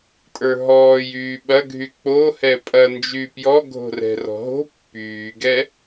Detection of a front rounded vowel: present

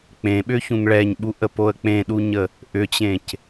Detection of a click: absent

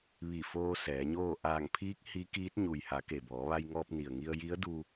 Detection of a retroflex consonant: absent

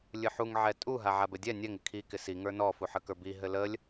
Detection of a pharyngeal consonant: present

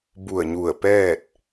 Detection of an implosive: absent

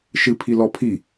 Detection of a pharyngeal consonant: absent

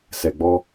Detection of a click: absent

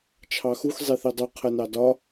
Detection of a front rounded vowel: absent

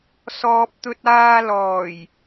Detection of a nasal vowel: absent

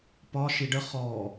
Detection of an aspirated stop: absent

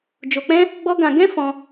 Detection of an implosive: absent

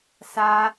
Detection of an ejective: absent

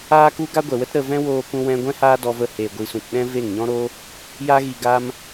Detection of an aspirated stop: absent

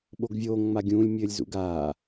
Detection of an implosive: present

